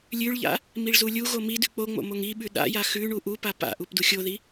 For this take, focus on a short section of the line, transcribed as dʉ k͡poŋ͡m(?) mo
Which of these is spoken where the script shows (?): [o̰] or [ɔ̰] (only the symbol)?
o̰